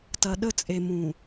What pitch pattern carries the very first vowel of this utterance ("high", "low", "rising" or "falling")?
low